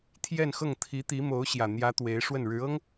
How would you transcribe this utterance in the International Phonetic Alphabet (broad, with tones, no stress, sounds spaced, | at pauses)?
t̪ʰ j ɛ˥˧ n x ɤ˥˩ ŋ t̪ʰ i˧˥ t̪ i˧˥ m o˧˥ ʊ̯ ɕ j ä˨˩ n̪ j ä˧˥ t̪ w e˧˥ ɪ̯ ʂ w ə˥˩ n ɻ ɻ̩˧˥ ɤ˥ ŋ